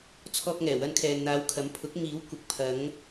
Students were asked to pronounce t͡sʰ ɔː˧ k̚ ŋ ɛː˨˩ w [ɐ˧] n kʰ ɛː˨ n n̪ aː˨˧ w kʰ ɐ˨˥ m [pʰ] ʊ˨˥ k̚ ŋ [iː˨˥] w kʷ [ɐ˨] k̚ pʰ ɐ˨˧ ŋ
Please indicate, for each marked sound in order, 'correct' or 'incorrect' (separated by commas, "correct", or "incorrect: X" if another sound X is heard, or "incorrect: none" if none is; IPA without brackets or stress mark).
correct, correct, correct, correct